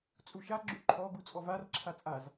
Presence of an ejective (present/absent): present